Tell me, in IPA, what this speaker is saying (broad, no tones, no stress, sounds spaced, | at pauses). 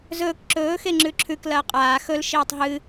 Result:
z ɵː k ǁ ɵː x e ŋ͡ǁ ʉ ǁʰ ʉ k l ɐː qʼ aː x ɵ l ʃ iː tˤ ɦ ɨ